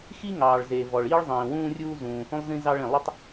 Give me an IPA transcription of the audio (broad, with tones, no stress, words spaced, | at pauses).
xi˥ŋɑː˩ɭ ze˩vɔ˩ɭ iː˥ɭ zˤĩː˩wũː˥rʲuː˥ zũː˩ hũ˥lˠzĩ˥zɑ˥ɭ ĩ˩lˠu˥tˤ